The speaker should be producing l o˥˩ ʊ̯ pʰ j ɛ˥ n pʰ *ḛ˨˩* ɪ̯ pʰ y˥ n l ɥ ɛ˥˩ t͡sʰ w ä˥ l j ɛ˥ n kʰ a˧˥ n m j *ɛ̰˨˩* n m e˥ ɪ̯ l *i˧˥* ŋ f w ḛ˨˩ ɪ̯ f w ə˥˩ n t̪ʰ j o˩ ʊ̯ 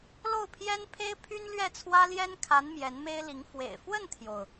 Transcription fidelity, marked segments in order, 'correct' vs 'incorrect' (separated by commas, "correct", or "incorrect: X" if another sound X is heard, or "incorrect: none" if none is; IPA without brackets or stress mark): incorrect: e˥, incorrect: ɛ˧˥, correct